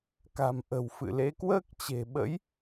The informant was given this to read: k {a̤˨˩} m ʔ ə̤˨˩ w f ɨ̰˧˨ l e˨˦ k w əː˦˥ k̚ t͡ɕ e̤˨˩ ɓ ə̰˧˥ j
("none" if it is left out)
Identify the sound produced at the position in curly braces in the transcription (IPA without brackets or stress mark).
a̤˨˩